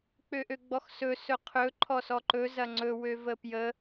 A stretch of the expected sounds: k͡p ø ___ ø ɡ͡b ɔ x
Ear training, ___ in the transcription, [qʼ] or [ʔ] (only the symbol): ʔ